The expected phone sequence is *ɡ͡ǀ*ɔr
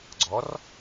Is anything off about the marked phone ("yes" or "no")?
no